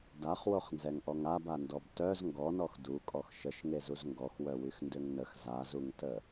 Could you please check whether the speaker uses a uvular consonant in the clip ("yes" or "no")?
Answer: yes